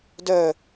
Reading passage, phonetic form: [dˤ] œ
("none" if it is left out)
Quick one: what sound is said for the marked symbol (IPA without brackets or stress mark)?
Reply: d